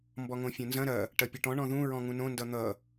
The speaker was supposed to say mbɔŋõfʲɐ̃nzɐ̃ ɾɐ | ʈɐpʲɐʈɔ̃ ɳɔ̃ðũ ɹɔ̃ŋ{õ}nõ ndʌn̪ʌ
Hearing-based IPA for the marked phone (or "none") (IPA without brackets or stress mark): ũ